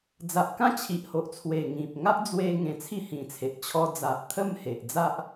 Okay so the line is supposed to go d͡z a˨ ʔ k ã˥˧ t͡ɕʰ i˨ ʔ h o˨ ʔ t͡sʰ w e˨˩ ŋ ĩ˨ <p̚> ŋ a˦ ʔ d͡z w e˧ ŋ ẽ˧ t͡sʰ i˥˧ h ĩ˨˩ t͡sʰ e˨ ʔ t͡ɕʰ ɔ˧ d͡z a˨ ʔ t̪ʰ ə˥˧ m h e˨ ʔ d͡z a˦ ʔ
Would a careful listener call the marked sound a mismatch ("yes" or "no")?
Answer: no